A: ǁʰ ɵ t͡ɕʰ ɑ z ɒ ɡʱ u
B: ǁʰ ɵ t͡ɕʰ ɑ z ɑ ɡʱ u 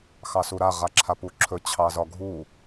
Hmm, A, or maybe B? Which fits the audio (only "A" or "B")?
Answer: A